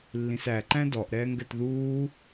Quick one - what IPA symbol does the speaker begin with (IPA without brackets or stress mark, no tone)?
lː